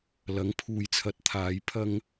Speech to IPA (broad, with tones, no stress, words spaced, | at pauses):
lɐ˨˥ŋpʰuː˨˧jt͡sʰɐ˨˥t̚t̪ʰaː˨˥j pʰɐ˧ŋ